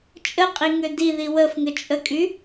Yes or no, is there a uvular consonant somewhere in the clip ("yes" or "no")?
yes